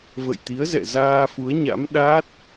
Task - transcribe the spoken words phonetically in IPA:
v ə̰˧˨ j t̪ i˨˦ ə̯ z ɛ̰˧˨ z aː˧ f u˨˦ ə̯ ɲ a̰˧˥ m ɗ a˦˥ t̚

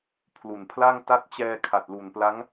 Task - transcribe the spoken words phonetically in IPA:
pʰ l u˨˩ n pʰ l a˥˩ ŋ t a˦˥ t̚ t͡ɕ ɛː˧ kʰ a˨˩ t̚ l u˨˩ n p l a˦˥ ŋ

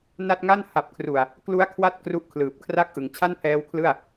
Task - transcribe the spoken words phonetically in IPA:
n a˦˥ t̚ ŋ a˥˩ n h a˨˩ p̚ kʰ r u˨˩ a̯ | k l u˦˥ a̯ kʰ w a˦˥ t̚ k r u˦˥ ʔ kʰ l ɯː˨˩ p̚ kʰ r a˦˥ k̚ ʔ ɯ˩˦ ŋ t͡ɕʰ a˥˩ n pʰ ɛː˦˥ w kʰ l ɯ˥˩ a̯

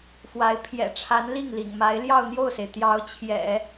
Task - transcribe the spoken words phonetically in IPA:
f w a˧˥ ɪ̯ pʰ j ɛ̰˨˩ ʈ͡ʂʰ a˧˥ n l i˥˩ ŋ l ḭ˨˩ ŋ m a˧˥ ɪ̯ l j ɑ˥˧ ʊ̯ n̪ j o˥˩ ʊ̯ s e˩ ɪ̯ t̪ j ɑ˧˥ ʊ̯ t͡ɕʰ j ɛ̰˨˩˦

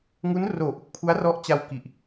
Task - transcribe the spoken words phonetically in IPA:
ŋ u˦˥ n r oː˨˩ ʔ u˦˥ k̚ pʰ u˦˥ a̯ r ɔ˦˥ ʔ t͡ɕ a˧ w k i˨˩ ʔ

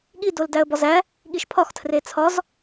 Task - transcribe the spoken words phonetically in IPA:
ɠ i d o l d æ ə̯ b ɒ z æ | ɠ i ʃ pʰ ɒ x tʰ r e t͡sʰ ɒ z

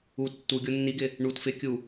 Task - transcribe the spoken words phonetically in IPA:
u tː u ɡʲ o nː i ɡ ɪ | ɳ u t f ɪ kʲ u

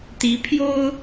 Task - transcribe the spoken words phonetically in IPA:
t̪ i˨˦ pʰ j o˦ ʊ̯

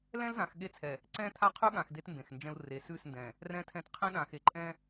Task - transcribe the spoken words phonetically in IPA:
l ɛ̃˦ l z ã˨ x ɠ e˦ t͡sʰ ɛ˨ | ǀ ɛ̃˦ t̪ʰ a˦ qʰ ʉ˦ ɠ ã˨ x d e˦ t m b ẽ˨ x n d͡ʒ ɛ̃˦ u̯ r e˨ s ʉ˦˨ s n d ɛ̃˨ | r ɛ̃˦ tʰ ɛ̃˦ t qʰ ẽ˦ ɗ ã˨ x e˨ ǃʼ ɛ̃˦

